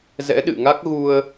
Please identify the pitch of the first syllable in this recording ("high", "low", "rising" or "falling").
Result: rising